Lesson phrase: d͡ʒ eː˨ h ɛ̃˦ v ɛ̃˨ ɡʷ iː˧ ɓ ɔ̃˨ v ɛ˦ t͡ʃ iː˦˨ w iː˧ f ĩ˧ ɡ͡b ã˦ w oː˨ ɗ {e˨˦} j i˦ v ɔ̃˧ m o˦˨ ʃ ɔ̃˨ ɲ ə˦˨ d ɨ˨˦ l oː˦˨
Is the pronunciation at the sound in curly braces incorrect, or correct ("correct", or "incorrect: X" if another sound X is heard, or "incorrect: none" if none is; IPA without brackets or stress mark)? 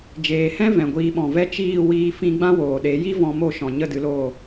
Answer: correct